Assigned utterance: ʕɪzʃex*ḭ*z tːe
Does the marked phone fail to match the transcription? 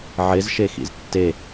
no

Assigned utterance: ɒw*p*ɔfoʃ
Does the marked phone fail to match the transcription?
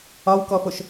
yes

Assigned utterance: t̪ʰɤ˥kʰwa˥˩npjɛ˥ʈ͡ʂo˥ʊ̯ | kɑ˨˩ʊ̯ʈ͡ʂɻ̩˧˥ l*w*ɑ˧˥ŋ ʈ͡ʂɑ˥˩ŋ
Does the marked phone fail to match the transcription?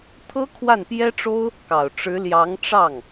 yes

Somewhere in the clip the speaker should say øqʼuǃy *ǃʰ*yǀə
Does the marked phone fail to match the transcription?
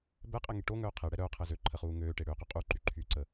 no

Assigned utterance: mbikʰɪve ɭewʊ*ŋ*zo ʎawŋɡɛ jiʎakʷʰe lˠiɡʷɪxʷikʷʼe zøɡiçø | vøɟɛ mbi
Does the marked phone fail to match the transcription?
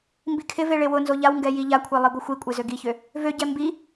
yes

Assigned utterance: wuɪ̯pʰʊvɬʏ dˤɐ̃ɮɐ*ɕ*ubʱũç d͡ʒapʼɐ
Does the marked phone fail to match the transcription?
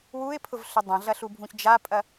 yes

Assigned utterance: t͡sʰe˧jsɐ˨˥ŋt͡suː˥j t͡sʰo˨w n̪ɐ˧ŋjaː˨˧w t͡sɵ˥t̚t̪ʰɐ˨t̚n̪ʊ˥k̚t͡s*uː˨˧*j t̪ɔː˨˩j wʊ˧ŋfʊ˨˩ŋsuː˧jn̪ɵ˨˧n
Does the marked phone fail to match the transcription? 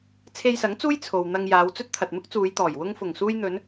no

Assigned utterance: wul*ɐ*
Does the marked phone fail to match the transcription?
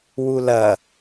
no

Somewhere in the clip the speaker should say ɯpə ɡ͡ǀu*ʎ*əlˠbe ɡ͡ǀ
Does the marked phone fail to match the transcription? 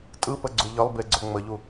no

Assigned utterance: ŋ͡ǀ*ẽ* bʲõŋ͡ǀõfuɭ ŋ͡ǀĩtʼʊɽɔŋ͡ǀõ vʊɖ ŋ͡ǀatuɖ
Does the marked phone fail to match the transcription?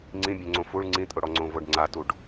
yes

